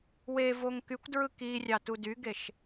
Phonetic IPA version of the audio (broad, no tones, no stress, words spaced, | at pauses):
wevoŋ kykʷdɹɯ kirʲɑ tudyɡeʃ